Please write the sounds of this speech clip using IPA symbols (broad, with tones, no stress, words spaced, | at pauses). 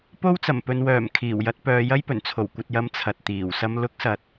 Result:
po˥wt͡sɐ˨˩m pɵ˨nwœː˨˩m kʰiː˨˩wjɐ˨˥t̚pœː˨˧ jɐ˥jpɵ˨˩nt͡sʰo˨˩w kʷɐ˨t̚jɐ˨˧m t͡sʰɐ˨t̚t̪iː˨˩wsɐ˥m lʊ˥k̚sɐ˨˥t̚